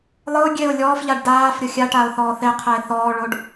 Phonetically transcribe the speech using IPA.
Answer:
lˠ ɯ ʊ̯ ɡʲ e ʊ̯ lʲ ɔː f ʎ a ɖ d aː f ɾʲ ɤ xʲ a ʈ aː ʊ̯ θ ɔː θ e qʰ ɛ ɪ̯ θ ɔː ɭ o ɖ

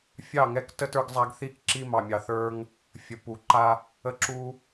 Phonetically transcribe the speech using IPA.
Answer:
fʲ ɑ˦˨ ŋ ɛ˧ k t ə˦ t ə˞˧ ɡ zˤ a˧ ɡ θ i˧ k ǁ i˧ m ɑ˨ mʲ ɑ˨ θ ə˞˧ ŋ | fʲ ə˨ p u˨ ǃ a˧ | ə˧ ǁ u˧

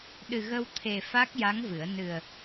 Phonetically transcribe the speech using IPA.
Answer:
ɗ ɨ˨˩ ɣ ə˧ w t̪ʰ e˨˩ f a˦˥ k̚ j a˧˥ ŋ v ɨ˨˩˦ ə̯ n ɨ˨˩ ə̯

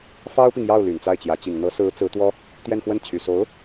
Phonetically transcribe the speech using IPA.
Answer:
f ɑ˥ ʊ̯ p i˨ ŋ j ɑ˥˩ ʊ̯ l y˨˩ n t͡s a˥˩ ɪ̯ t͡ɕ j ä˧˥ t͡ɕ i˨˩ ŋ n̪ ɤ˧˥ s ɹ̩˧˥ t͡s ɹ̩˧˥ t̪ w ɔ˥ | t̪ j ɛ˥˧ n x w ə˥˩ n t͡ɕʰ y˨˩ s o˧˥ ʊ̯

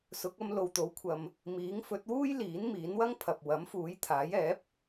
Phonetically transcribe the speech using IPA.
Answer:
s ʊ˨˥ k̚ ɐ˧ m l o˨ w t̪ o˨˥ w kʷʰ ɐ˨ m | m iː˨˥ ŋ f ɵ˨˥ t̚ w uː˥ j l iː˨˥ n m iː˨˥ n w ɐ˥ ŋ pʰ ɐ˨ p̚ w ɐ˨˥ m f uː˨˥ j t̪ʰ aː˨˥ j ɛː˨˥ p̚

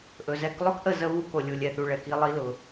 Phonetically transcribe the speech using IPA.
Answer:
ʔ ɵ˨ z ɛ˦ k lˠ ɵ˦ k ʔ ə˦˨ z ə˦ β u˦ k o˨ lʲ u˨ lʲ ɛ˨ θ u˨ ɭ ɛ˨ k i˦ lˠ i˦ l ʊ˨

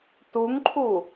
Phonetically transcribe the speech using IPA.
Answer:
t u ŋ ǃʰ u

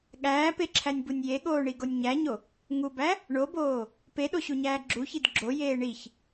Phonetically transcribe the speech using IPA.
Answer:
ɠ æː p e ǁʰ æ nʲ b u nʲ j e ɠ oː ɳ i ɡ o nʲ ɲ æ ɲ o | ŋ u b æ | ɳ o b oː | p e ɗ o ɕ u ɲ æː ɡ͡ǁ u ç i d ɡ͡ǁ o j eː ɳ i ç

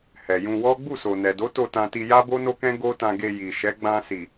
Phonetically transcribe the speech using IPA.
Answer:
h ɛ˨ j ũ˧ w ɔ˦ ɡ͡b u˦˨ s o˨ n ɛ˨ d o˨˦ t o˦˨ t ã˧ t i˧ j a˦ b o˦ n o˦ k ɛ̃˦ ɡ o˦ t ã˧ ɡ e˧ j i˨ ʃ ɛ˨˦ ɡ͡b ã˧ s i˨

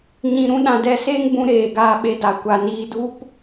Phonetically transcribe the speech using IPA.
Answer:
ɲ ĩ˧ ɾ ũ˦ ɗ ã˧ d ɛ˧ s eː˦ ŋ b ũ˧ ɾ eː˧ ɡ aː˧ ɓ e˧ d a˨ kʷ a˨ n iː˧ d u˦ p

